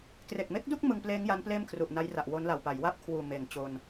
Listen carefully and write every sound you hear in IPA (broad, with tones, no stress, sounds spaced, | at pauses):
k r e˨˩ k̚ m e˦˥ k̚ d u˥˩ k̚ m ɯ˧ ŋ p l eː˦˥ ŋ j a˦˥ n p l eː˥˩ m kʰ r u˨˩ ʔ n a˦˥ j r a˨˩ ʔ w o˦˥ n l a˨˩ w p a˩˦ j w a˥˩ p̚ kʰ w uː˨˩ m eː˩˦ ŋ t͡ɕ o˧ n